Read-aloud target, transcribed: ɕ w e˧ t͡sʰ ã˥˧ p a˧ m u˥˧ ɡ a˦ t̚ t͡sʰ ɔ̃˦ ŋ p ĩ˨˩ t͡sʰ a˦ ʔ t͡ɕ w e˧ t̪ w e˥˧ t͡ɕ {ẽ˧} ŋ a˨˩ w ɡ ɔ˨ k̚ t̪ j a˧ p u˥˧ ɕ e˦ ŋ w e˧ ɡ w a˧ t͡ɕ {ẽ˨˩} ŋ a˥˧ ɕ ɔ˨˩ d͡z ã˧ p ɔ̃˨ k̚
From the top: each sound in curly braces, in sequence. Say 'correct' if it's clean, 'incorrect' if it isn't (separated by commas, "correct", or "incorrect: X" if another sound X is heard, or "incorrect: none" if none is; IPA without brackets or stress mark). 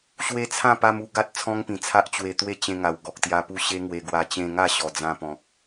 correct, incorrect: ẽ˧